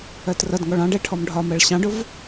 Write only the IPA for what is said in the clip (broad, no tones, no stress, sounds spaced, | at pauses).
ɜ t r ʌ d ŋ ɔ ɭ ɑ̃ ɖ ɛ ʈʰ ɔ m ɖʱ ɒ m ɜ ɭ ɕ ɑ̃ ɖ ʊ v